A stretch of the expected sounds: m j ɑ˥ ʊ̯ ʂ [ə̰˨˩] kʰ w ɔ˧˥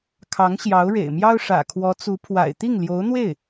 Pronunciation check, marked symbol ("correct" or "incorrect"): incorrect